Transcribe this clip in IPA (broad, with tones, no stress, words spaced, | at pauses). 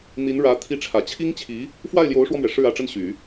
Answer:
n̪i˧˥n ɻä˧˥ t̪ʰi˧˥ʈ͡ʂʰä˨˩t͡ɕʰi˥ŋt͡ɕʰi˧˥ | fwa˥˩ɪ̯ljo˧˥ʊ̯ʂwɔ˧mɥɛ˩ ʂɻ̩˥˩ä˧˥ʈ͡ʂə˥˩n ɕy˨˩˦